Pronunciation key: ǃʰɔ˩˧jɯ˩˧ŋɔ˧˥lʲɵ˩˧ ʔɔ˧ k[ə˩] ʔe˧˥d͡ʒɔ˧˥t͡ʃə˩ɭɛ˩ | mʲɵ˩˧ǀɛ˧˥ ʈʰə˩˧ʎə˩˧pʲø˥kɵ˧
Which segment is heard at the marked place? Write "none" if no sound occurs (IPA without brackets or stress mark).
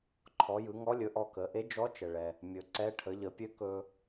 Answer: ə˩˧